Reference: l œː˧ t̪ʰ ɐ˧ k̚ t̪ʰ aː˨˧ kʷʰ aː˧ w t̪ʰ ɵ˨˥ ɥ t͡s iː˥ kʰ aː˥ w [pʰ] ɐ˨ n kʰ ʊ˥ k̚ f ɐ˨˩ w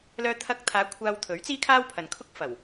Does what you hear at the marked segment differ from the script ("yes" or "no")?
no